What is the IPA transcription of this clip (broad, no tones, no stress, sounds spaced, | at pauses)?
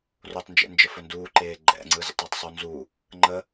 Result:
r o tˤ n d͡ʒ ḛ n d͡ʒ ə f ɵ n d uː ǃ eː ɡ͡ǃ ɛ̰ ŋ͡ǀ ɯ z ə̰ tˤ əː tˤ sˤ u n z u | ŋ͡ǃ ə